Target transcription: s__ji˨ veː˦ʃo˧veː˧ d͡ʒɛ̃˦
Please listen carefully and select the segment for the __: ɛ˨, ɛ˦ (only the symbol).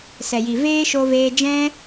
ɛ˨